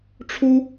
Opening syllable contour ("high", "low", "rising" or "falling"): high